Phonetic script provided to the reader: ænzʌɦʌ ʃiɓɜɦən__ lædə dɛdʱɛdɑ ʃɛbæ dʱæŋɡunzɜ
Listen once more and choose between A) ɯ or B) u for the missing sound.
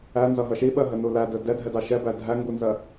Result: B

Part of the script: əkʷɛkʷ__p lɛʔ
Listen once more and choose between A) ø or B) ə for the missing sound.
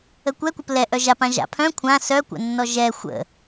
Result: B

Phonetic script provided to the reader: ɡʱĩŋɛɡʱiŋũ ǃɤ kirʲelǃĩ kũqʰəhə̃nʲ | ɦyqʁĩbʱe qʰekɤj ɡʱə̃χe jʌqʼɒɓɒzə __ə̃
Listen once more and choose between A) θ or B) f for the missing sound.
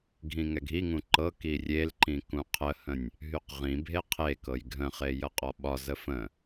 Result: B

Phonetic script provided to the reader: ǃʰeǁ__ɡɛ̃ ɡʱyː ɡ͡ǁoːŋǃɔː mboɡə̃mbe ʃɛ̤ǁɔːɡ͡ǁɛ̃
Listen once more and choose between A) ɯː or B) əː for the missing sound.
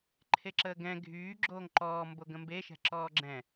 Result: B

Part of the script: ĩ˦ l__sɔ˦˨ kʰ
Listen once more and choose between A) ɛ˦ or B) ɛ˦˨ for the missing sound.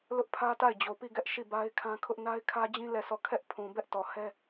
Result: B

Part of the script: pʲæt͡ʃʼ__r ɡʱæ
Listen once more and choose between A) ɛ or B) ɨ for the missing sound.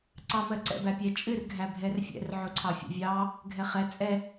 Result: B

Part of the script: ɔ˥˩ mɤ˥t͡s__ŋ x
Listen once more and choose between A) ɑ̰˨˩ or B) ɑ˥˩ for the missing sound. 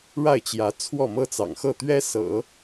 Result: A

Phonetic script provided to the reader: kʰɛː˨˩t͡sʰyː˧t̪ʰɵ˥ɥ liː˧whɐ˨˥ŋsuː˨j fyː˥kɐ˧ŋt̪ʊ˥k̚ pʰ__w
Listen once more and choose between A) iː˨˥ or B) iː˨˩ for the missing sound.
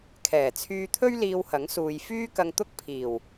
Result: B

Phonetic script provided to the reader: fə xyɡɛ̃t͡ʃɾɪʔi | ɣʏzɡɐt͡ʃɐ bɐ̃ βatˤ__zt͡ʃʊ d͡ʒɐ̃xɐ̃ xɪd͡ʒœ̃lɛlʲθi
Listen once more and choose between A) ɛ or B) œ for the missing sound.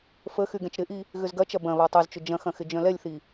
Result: B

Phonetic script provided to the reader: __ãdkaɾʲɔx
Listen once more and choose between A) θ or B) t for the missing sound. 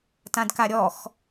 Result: B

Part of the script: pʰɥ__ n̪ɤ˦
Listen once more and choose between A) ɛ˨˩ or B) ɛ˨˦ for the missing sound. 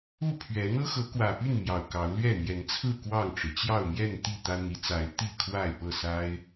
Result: B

